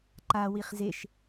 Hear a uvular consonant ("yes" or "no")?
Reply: yes